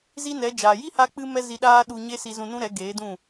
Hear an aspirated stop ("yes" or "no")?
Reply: no